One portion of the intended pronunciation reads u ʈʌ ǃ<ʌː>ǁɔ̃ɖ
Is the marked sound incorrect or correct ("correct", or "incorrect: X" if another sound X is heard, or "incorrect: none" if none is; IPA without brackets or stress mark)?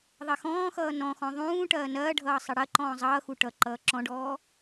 correct